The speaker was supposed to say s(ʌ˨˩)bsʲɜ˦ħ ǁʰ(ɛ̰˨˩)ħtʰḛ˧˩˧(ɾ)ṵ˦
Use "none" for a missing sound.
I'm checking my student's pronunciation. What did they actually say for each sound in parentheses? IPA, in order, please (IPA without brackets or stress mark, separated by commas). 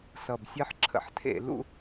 ʌ˨˩, ə̰˨˩, l